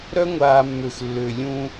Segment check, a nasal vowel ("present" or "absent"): present